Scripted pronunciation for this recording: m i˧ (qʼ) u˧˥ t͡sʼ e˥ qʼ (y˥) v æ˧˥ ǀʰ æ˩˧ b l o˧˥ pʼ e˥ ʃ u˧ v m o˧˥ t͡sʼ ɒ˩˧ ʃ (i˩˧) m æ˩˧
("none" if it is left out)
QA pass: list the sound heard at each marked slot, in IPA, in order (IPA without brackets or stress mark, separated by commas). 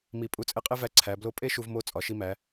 pʼ, e˥, i˧